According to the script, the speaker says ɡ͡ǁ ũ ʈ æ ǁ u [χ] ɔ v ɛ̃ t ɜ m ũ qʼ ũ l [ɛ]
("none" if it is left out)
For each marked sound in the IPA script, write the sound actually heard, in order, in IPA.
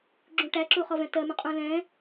χ, ɛ̃

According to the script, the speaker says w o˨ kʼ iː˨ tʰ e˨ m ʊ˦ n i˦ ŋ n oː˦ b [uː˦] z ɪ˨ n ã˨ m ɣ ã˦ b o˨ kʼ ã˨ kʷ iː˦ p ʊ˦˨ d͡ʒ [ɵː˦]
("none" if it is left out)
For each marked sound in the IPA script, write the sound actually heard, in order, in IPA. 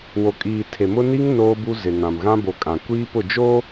u˦, oː˦

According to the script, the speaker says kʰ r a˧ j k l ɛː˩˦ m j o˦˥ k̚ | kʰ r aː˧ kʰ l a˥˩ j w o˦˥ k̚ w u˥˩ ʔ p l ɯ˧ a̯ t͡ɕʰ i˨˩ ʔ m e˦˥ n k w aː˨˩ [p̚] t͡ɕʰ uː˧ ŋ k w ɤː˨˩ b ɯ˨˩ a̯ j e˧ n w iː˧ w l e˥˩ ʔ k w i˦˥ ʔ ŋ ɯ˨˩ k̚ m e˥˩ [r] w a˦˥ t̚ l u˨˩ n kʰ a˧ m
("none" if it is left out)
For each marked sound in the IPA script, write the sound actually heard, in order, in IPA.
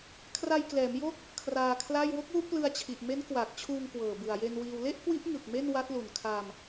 k̚, n

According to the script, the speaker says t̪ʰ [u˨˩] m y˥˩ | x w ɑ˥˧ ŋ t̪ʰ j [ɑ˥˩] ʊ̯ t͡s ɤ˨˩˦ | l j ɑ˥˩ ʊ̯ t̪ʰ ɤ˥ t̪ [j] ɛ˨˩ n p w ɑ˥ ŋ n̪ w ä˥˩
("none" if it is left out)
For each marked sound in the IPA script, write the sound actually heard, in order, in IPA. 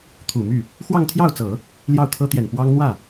u˨˩, ɑ˥˩, j

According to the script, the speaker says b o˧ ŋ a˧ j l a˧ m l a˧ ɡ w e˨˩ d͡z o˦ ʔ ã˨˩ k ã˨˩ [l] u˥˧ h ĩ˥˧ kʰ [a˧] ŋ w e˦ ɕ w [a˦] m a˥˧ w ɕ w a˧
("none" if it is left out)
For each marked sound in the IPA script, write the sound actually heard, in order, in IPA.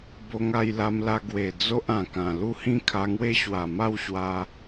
l, a˧, a˨˩

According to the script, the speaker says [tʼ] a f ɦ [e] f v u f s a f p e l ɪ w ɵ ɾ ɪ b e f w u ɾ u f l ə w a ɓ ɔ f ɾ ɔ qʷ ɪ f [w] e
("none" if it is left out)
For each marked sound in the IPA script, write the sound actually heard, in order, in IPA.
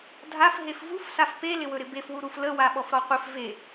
dʱ, e, v

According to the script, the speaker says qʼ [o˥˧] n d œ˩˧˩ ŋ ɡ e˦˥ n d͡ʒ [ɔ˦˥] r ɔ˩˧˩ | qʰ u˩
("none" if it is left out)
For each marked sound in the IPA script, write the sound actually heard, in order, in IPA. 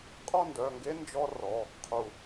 ɔ˥˧, ɔ˦˥

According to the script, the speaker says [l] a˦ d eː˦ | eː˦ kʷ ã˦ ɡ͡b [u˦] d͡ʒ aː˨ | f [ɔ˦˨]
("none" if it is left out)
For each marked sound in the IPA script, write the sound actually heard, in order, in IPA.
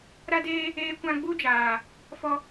ɾ, u˦, ɔ˦

